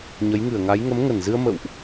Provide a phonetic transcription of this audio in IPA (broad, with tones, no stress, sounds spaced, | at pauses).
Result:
ɲ ə˨˦ j ŋ ɨ˧˩ ə̯ ŋ a˨˦ j ŋ ə˨˦ m ŋ ə˧˩ n z ɨ˧ ə̯ m ə̰˧˨ w ʔ